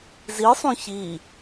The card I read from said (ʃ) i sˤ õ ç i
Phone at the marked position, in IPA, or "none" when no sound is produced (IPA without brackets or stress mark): z